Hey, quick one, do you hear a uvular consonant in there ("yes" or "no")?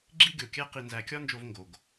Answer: yes